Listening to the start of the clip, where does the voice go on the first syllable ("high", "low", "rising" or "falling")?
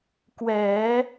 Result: rising